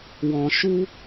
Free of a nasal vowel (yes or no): no